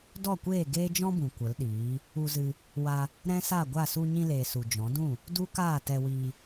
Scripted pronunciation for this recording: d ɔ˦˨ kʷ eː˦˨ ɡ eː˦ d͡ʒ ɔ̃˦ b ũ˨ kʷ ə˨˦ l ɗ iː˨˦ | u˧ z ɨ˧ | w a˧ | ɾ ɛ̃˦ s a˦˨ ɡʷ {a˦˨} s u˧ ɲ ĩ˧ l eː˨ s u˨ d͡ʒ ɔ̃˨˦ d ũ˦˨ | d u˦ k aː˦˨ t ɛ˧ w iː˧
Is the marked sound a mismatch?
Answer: no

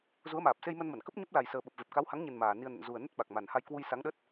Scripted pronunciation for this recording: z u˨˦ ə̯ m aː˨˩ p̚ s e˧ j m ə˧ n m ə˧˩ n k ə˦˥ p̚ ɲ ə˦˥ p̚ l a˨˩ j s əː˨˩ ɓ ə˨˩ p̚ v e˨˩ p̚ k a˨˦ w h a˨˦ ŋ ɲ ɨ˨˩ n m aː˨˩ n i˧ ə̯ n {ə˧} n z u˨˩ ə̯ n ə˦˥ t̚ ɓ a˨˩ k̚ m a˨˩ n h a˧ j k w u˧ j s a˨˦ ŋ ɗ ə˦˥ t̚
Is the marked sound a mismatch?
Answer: yes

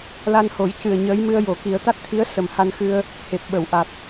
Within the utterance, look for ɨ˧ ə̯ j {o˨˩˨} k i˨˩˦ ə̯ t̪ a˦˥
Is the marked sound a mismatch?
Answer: no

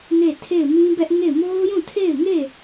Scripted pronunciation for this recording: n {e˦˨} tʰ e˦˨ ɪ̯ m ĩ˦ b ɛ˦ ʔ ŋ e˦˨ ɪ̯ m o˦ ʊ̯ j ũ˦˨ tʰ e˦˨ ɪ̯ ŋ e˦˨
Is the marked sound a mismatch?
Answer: no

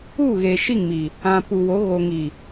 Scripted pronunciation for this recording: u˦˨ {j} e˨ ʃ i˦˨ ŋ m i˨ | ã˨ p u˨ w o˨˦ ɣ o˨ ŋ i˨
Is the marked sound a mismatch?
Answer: yes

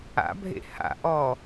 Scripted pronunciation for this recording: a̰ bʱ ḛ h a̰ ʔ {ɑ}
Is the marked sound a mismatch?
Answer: yes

